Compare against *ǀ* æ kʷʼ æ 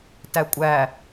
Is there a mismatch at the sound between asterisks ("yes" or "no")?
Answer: yes